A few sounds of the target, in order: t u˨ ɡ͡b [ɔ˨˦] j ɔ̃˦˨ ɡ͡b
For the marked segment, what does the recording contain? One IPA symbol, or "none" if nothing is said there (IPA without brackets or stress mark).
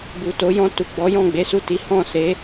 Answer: ɔ˨˦